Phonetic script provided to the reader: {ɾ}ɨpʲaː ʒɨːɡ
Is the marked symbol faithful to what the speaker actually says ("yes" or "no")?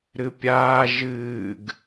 yes